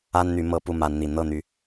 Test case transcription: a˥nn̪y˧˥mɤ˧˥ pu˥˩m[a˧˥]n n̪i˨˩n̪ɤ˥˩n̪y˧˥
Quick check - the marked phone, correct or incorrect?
correct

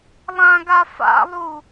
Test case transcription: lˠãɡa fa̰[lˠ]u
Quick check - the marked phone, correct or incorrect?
correct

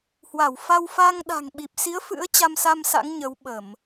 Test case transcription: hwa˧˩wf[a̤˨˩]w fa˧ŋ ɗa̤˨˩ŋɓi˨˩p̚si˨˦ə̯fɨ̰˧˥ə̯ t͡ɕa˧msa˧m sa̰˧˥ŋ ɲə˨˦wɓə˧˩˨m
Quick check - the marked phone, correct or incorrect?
incorrect: a˧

